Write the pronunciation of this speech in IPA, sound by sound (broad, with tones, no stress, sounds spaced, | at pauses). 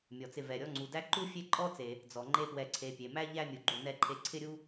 mʲ ɔ˩ t͡s ɪ˨ v ɛ˩ ɾʲ ɔ˦ ŋ͡ǀ u˩ d æ˦ ǃ u˥ fʲ e˥ ǃʼ ɔ˥ t͡s e˩ | d͡z ɔ˩ ŋ͡ǃ e˦ p w ɛ˨ ǀʰ e˨ pʲ e˩ m æ˥ ʎ æ˦ mʲ u˩ ɡ͡ǃ u˨ n ɛ˦ ǃʰ e˦ ǀʰ ɪ˦ ɾʲ u˦